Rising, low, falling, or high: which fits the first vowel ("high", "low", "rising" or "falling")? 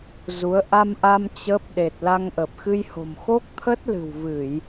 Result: rising